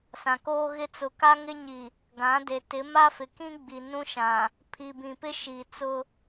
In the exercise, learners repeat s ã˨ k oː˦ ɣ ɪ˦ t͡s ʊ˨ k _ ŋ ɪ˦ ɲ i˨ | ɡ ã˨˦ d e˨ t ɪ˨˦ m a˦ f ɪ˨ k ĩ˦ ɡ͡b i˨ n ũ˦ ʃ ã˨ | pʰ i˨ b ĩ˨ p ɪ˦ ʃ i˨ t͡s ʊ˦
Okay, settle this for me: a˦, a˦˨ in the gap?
a˦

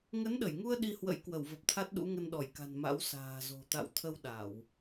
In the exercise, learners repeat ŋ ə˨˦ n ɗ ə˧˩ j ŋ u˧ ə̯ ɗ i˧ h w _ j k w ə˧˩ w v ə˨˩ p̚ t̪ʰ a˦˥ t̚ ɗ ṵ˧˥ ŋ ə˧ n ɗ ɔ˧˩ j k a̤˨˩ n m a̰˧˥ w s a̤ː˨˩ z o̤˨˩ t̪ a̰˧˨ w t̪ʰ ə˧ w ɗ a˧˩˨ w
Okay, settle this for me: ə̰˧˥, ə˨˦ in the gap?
ə̰˧˥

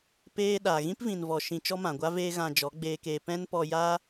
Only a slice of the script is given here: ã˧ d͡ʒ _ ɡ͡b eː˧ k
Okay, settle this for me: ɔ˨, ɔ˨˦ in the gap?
ɔ˨˦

